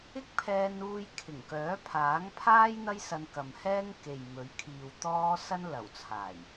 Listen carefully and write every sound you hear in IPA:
ɪ˥ k̚ pʰ ɛː˧ n uː˧ j kʰ ɪ˨˩ ŋ k œː˨˥ pʰ aː˨˥ ŋ pʰ aː˥ j n̪ ɐ˥ j s ɐ˧ n k ɐ˨ m h ɛː˥ ŋ k e˨ j m ɵ˨˥ ɥ kʰ iː˨ w t̪ ɔː˥ s ɐ˥ n l ɐ˨˩ w t͡sʰ aː˨˩ j

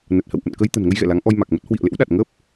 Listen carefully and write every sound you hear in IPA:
n ə˨˩ t̚ h ə̰˧˨ w ʔ ə̰˧˨ n k ə˧ j t̪ ə̤˨˩ n ŋ ə˧ j ɣ ɛ̰˧˨ l a˨˦ ŋ ʔ ɔ˧ j m a˨˩ k̚ m ə˦˥ t̚ h w ḭ˧˨ ə̯ l ḛ˧˥ w ɗ a˨˩ t̚ ŋ əː˦˥ p̚

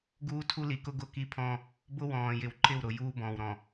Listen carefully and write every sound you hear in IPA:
ɡ uː˦ tʰ u˦ l i˨ k ʊ˦ ɡ ʊ˦ k i˦ pʰ ɔ̃˦ | b ʊ˦ w ɔ̃ː˨ j ɪ˨ w ǃ ɪ˦˨ w ɾ ʊ˨ j uː˦ b ɔ̃ː˨ w ɾ ɔ̃˨

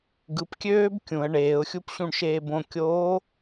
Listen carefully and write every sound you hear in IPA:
ɡ ɯ p kʲ øː b kʲ ũ ə̯ ɳ eː ʊ̯ xʲ u p ɕ ũ ɳ ʃ eː b õ kʲ oː

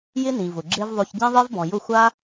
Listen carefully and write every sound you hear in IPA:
j ɪ˦ n ĩ˨ v ʊ˨ ɡ͡ǁ e˦ v ðˤ o˧ ç ɟ ĩ˦ ðˤ e˦ v b ɔ̃˨ j ʊ˦˨ xʷ a˦

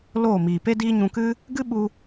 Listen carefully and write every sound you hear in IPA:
l oː˦˨ m iː˨ p e˦ d iː˦ ɲ ũ˧ k ɨ˦ | ɡ ɨ˦ ɓ u˧

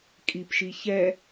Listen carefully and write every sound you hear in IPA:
kʼ i p ʃ i ç ɛ

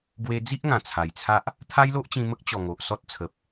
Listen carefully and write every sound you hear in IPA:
ɡ w e˧ d͡z i˦ ʔ ŋ ã˨˩ t͡sʰ a˨˩ j t͡sʰ a˦ ʔ | t̪ʰ a˦ j l o˦ ʔ t͡ɕ ĩ˧ m ə˦ k̚ t͡ɕ ɔ˨˩ ŋ o˨ ʔ s ɔ˦ t̚ t͡sʰ ə˨ p̚

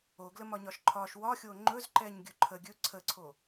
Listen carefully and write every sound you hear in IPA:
o ɡ l ə m ɒ ɲ ɒ ʃ ǃʰ ɒ ʃ w ɒ xʲ o ŋ͡ǃ ɵ z ǃ ɛ ɲ ɡʲ ɵ ǃʰ ə ɡʲ ɵ ǀʰ ə ǀʰ o

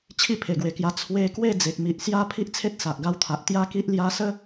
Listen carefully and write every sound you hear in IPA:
t͡ɕʰ i˥˧ pʰ e˨˩ ɡ w e˨˩ k j a˧ t͡sʰ w e˧ k w e˥˧ d͡z e˨ k̚ m i˨ ʔ s j a˦ pʰ i˦ ʔ t͡sʰ e˦ t̚ s a˨ ʔ ɡ a˧ w t̪ʰ a˨ ʔ t̪ j a˦ k i˦ ʔ l j a˧ s ə˦

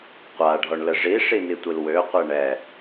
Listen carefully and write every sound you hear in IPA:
qʷ a ɖʱ ɔ ɳ l ə ʐ i ʂ i n i tʷ i l w ø qʷ ɛ ɳ ɛ

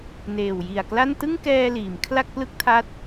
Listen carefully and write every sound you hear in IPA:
n eː˨˩ w j i˨˩ a̯ k l a˥˩ n t ɯ˥˩ ŋ k ɛː˧ l iː˩˦ m kʰ l a˥˩ k̚ p l ɯ˥˩ k̚ tʰ a˦˥ t̚

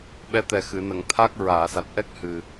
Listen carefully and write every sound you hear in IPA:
ɓ ɛ˧˥ t̪ ɛ˨˩ x ɨ˨˩˨ n ə˨˩˨ ŋ t̪ʰ a˦˥ k̚ ɹ aː˨˩˨ s a˨˩ t̚ ʔ ɛ˦˥ k̚ h ɨ˨˩

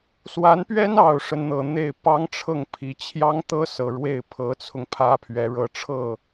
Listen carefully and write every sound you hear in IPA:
s w a˧˥ n p ɥ ɛ˥ n ɑ˨˩ ʊ̯ ʂ ə˦ n n̪ ɤ˨˩ n̪ e˥˩ ɪ̯ p ɑ˥ ŋ ʈ͡ʂʰ ɤ˥˩ ŋ pʰ i˧˥ t͡ɕʰ j ɑ˥ ŋ t̪ ɤ˥ s ɤ˨˩ ɻ w e˥˩ ɪ̯ pʰ ɤ˧˥ t͡sʰ ʊ˧ ŋ pʰ ä˥ pʰ ɥ ɛ˧˥ ɻ ɤ˧˥ ʈ͡ʂʰ ɤ˥˩

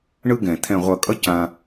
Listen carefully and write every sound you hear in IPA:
ɳ ɯ˦ ɡ ɛ̃˨ t̪ʰ ɛ̃˨ ʁʷ ʌ˨ kʼ ʌ˧ c ã˧

